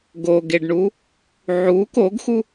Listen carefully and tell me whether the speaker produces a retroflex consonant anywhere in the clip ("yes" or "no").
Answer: yes